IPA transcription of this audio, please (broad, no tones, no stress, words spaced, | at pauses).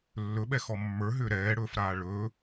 lːɵɓɛxɔ mːə˞ɦʏː ɾɛːɽɵːfɾaː ɭɵː